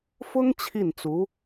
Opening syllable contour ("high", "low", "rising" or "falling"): high